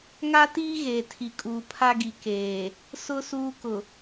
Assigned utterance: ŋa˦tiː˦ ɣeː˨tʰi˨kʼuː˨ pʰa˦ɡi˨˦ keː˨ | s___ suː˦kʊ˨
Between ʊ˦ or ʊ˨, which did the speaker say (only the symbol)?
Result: ʊ˦